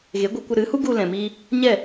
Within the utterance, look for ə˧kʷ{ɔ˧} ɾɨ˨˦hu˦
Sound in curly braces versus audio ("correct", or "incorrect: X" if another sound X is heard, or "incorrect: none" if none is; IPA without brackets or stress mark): incorrect: ə˧